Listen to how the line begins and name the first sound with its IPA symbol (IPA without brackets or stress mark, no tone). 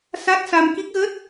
s